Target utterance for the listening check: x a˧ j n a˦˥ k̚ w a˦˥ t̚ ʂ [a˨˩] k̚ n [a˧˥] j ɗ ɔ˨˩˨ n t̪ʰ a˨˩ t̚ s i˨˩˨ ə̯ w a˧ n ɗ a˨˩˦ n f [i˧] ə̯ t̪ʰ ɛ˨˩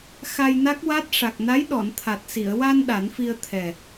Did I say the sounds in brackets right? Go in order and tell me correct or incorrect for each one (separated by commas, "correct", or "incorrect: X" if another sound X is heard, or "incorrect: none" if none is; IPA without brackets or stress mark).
correct, correct, correct